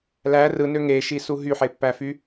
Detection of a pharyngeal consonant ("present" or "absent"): present